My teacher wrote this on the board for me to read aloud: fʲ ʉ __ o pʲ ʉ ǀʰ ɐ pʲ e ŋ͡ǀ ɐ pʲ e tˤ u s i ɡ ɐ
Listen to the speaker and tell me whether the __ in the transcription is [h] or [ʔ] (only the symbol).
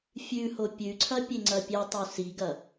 h